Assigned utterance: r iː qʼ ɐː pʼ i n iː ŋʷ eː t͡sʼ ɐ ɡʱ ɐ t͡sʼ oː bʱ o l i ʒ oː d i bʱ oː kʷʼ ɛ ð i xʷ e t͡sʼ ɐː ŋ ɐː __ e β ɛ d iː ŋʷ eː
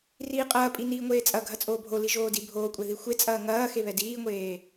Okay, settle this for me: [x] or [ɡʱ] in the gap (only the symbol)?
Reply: x